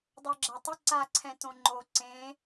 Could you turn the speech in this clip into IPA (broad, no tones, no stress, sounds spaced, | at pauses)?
dˤ o ɡ͡ǁ a tˤ ɪ ǀ a ǀʰ ɛ̃ t õ ŋ͡ǃ o ǀ ẽ